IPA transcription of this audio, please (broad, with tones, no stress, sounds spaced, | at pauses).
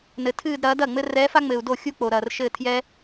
n ɘ˨ tʰ ɨː˥˧ d ɾ ɐː˩˥ d ɐ˥˩ ŋ͡m ɘ˥ r ɛː˧˥ f a˥ ŋ͡m ɘː˨ u̯ d o˥˩ xʲ u˥˧ k͡p o˨ ɾ ɐː˨ r ʃ ɘː˥˧ tʰ j ɛ˥